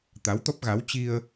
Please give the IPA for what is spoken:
t̪ a˨˦ w t̪ ɔ˦˥ p̚ ɣ a˨˦ w t͡ɕ i˧ ə̯

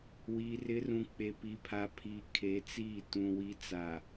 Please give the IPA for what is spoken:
w iː˨ r ɪ˨˦ r ũ˨ k͡p e˨ p i˨ pʰ a˨ pʰ iː˨ kʰ e˨˦ t͡s iː˦˨ t ũ˨ w i˨˦ t͡s a˨

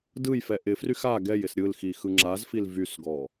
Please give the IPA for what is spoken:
d ɯ j f ɛ ʔ ɪ f r y x a ɡ ɛ j ɪ s ɾʲ ɯ l x i x ɯ ŋ͡ǁ a z f i l v y s ɡ ɔ

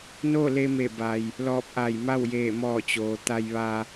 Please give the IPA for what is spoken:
n o˥˨ l e˧ m e˧˩ b a˩ j | l ɔː˧˩ p̚ ʔ a˧˩ j m a˥˨ w j eː˧˩ m ɔː˧˩ t͡ɕ oː˩ t̪ a˧ j ʋ a˧

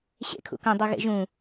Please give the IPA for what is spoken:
ɕ ḛ kʰ ṵ k ɐ̃ dˤ u ɣ ḛ ʒ ũ

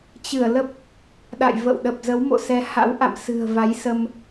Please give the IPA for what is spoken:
t͡ɕ ɨ˧˩ ə̯ l ə˦˥ p̚ | ɗ a̰˧˨ j v ə̰˧˨ w ɗ ə˨˩ p̚ z ə˨˦ w m o̰˧˨ s ɛ˨˦ h a̰˧˥ w ʔ a̰˧˨ m s ɨ̤˨˩ ə̯ v a˨˦ j s ə˧ m

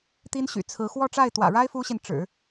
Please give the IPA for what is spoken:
t̪ i˥ n ɕ y̰˨˩ t͡sʰ ɹ̩˧˥ x w ɔ˥˧ ʈ͡ʂ a˥˩ ɪ̯ t̪ w ä̰˨˩ ɻ a˥ ɪ̯ f u˥ ɕ i˨ n ʈ͡ʂ ɻ̩˨˩˦

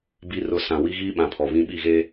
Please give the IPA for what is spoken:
b i˨ r ʊ˨ s ã˨ w i˦ ɣ iː˦ ɓ ã˨ pʰ ɔ˨ β ĩ˦ ɓ i˦˨ ɣ e˦

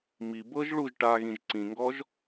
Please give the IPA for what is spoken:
m i b ɤ ʒ ɭ u ʒ ʈ a ɣ ĩ ʒ ǀ ĩ ŋ ɡ ɔ ʒ

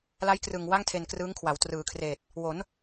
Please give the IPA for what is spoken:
l a˦˥ j k r ɯ˨˩ ŋ w a˥˩ ŋ tʰ e˧ n k r ɯː˦˥ ŋ kʰ w a˩˦ w t r ɯː˩˦ kʰ r eː˨˩ t̚ | w o˩˦ n

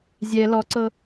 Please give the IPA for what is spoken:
zʲ ɛ l ɔ ǀ ɤ

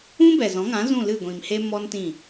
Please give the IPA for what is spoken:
ũ˦ b ɛ˨ z ɔ̃˨˦ ŋ ã˨˦ z ũ˦˨ l ɨ˦˨ ɡʷ ĩ˨ m h e˦ m ɔ˦ n t ĩ˦˨

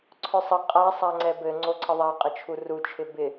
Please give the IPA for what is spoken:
ǀʰ œ sˤ ə qʼ a sˤ a ŋ͡ǀ ɛ b ɘ ŋ͡ǀ o ǀʰ ə ðˤ a qʼ ə t͡ʃʰ u r u t͡ʃʰ ɪ b ɪ

